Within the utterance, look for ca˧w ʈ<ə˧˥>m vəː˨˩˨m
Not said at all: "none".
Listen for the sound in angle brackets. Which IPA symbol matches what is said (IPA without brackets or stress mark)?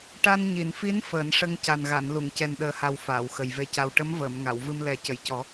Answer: ə˧˥